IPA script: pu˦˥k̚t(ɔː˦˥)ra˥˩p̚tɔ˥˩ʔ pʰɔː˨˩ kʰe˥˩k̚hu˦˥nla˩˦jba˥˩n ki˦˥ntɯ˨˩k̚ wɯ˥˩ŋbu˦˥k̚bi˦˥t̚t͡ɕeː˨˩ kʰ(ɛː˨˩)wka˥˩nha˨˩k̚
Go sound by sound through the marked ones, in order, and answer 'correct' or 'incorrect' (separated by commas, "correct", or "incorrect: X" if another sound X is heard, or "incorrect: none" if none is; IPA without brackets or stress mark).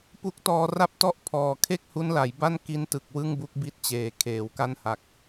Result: incorrect: ɔː˧, incorrect: eː˨˩